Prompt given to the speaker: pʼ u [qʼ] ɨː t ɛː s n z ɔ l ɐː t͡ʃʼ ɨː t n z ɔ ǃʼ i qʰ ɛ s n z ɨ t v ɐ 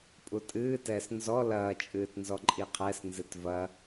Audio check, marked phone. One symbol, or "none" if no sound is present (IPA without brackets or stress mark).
tʼ